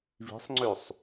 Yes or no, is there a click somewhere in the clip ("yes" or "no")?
yes